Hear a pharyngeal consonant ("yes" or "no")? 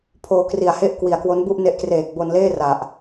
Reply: no